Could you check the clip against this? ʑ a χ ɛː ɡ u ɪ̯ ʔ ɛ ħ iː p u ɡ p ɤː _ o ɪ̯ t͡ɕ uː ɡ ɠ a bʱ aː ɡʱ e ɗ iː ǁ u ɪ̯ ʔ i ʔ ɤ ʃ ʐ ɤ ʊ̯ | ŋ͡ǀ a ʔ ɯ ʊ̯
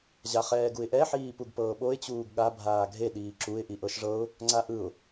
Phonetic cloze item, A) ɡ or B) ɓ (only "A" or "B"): B